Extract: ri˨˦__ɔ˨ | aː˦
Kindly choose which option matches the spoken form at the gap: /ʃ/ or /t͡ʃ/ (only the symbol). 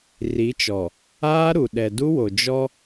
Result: t͡ʃ